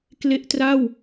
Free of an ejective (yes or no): yes